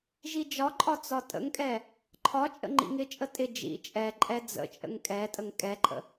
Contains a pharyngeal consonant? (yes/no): no